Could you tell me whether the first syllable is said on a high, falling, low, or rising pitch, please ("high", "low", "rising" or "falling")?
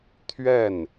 falling